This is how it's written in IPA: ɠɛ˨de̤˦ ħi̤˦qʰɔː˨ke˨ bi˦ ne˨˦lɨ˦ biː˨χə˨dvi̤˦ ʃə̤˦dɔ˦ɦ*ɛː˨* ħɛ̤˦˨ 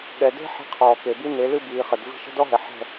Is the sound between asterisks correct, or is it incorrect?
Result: incorrect